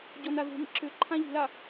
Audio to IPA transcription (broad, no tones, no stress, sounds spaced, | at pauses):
ɟ ɔ n a ð ṳ m ḭ ǁ ʏ ǃʰ ã ʎ i̤ l a